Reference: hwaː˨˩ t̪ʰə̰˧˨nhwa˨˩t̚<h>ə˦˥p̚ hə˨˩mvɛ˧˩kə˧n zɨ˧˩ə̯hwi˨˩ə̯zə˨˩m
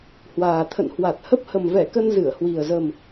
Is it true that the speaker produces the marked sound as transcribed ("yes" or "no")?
yes